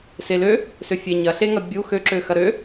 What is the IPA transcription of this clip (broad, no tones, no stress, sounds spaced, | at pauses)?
s e l ø | s ø fʲ e ɲ ɐ ɬ e ŋ ɐ bʲ u x ø ǁ ø x ɐ ɾ ø